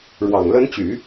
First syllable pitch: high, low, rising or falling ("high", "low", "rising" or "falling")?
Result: low